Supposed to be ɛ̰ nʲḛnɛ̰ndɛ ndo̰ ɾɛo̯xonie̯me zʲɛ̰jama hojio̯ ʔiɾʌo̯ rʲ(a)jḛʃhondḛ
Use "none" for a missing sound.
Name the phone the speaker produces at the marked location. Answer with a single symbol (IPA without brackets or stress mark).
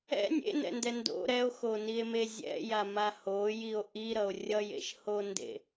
ʌ